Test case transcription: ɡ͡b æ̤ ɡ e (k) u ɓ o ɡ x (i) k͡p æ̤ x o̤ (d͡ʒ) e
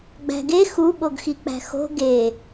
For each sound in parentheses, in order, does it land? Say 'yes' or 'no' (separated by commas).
no, yes, no